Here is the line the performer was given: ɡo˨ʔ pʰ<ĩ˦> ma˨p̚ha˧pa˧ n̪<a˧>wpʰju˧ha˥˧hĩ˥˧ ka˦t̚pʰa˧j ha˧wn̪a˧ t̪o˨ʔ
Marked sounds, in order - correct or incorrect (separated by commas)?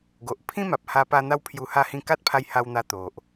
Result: correct, incorrect